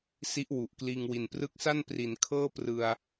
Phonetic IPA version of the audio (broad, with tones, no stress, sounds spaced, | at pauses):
s i˦˥ ʔ w u˨˩ ʔ k l iː˧ ŋ w i˨˩ n p r ɯ˦˥ k̚ s a˥˩ n p r i˩˦ n kʰ ɤː˥˩ p r ɯ˧ a̯